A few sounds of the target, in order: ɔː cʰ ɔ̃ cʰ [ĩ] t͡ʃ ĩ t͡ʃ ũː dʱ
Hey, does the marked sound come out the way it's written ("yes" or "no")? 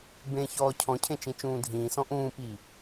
no